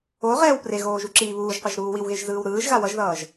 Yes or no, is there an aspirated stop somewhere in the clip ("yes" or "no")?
no